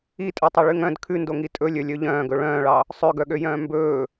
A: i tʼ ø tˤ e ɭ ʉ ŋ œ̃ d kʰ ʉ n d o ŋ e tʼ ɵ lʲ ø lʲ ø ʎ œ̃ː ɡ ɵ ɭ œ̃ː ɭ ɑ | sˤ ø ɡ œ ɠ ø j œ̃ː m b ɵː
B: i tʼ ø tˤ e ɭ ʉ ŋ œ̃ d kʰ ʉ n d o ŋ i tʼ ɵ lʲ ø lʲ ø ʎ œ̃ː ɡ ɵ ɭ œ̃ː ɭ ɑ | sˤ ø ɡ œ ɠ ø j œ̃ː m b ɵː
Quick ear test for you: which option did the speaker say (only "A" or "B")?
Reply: B